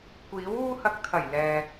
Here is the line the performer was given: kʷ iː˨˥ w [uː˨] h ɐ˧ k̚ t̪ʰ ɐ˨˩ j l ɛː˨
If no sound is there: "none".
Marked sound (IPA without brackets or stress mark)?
uː˥